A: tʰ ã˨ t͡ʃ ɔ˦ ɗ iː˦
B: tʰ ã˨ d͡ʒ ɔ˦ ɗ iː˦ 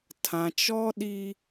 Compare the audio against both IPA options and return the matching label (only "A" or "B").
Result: A